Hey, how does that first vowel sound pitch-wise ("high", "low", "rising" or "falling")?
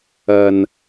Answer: low